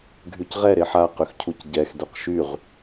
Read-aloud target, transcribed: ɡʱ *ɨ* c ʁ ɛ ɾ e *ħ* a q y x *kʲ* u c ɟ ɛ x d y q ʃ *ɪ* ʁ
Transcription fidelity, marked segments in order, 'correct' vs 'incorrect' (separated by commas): incorrect, correct, incorrect, incorrect